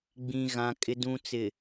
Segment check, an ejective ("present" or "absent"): present